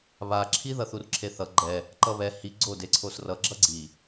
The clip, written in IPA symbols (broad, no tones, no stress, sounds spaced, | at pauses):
β a ǁʰ i ð ʌ θ u r ǁʰ e θ ʌ ɡ͡ǃ ɛ | ǃ ʌ β ɛ h i ɡ͡ǀ o d e ǀʰ o s r ʌ ɡ͡ǁ ʌ ɡ͡ǀ i